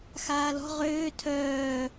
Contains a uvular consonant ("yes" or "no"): yes